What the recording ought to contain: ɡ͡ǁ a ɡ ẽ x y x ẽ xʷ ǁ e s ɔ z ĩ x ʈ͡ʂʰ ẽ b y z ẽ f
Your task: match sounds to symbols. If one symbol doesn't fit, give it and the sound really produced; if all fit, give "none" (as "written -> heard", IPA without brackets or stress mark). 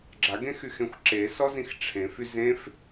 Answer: b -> f